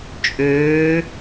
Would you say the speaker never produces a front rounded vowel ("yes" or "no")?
no